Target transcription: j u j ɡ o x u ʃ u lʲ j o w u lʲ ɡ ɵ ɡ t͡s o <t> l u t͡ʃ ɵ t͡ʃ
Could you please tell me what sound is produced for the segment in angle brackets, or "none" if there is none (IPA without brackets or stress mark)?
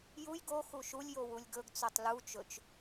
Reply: tˤ